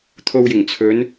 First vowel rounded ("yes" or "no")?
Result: yes